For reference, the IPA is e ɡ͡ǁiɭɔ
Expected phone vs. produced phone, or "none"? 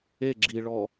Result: none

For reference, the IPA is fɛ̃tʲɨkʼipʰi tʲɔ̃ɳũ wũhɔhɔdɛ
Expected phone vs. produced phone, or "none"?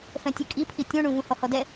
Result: w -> v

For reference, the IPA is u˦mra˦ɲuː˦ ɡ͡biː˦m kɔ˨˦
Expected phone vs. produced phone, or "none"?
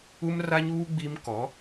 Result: none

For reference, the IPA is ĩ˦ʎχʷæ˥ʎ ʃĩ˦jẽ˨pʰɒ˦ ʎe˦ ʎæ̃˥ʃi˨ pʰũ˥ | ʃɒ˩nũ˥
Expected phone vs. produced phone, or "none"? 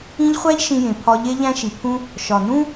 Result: none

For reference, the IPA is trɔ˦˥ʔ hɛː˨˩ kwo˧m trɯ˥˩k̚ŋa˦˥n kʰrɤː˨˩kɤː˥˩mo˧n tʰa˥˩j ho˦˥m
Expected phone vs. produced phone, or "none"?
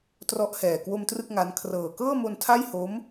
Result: none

